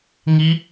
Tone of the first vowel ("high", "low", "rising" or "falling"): high